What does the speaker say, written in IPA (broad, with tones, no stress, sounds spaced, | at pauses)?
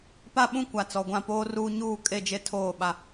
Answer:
p a˦ ɓ ũ˦ kʷ a˨ t͡s ɔ˨ ɡʷ ã˦˨ p oː˦ r uː˦ ɲ uː˦˨ kʼ e˦˨ d͡ʒ e˦˨ tʰ oː˦˨ ɓ a˨